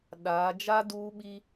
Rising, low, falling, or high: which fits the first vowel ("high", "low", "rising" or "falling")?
rising